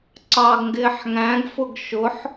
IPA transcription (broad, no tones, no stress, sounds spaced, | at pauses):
ǀ ɑ ɡ ŋ ɡ ɪː ħ ŋ æ̃ ɡ f ʊ ɡ ʃ ʊ ħ